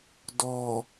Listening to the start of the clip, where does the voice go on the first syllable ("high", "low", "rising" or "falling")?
low